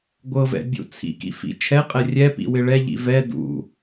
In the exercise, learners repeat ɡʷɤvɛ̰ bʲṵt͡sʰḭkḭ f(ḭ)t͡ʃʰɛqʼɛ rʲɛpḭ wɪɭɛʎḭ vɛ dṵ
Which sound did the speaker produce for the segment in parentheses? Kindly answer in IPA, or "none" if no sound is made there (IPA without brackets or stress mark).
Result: ḭ